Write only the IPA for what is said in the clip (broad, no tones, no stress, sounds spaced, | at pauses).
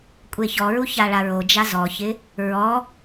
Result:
kʷʼ e ç ɔ ɹ u ç a ɭ a ɹ o d͡ʒ a z ɔ ç ɪ | ɹ ɔ